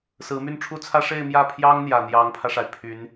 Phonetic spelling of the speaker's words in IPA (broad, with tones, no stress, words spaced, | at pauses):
sɹ̩˧˥my˥˩nʈ͡ʂʰu˥t͡sʰä˥ ʂe˥˧ɪ̯mjä˥˩pʰjɑ˥ŋ n̪jä˨˩n̪jɑ˧˥ŋpʰä˧ʂa˩ɪ̯ pʰy˧˥n